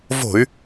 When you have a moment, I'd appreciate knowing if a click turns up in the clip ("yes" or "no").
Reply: no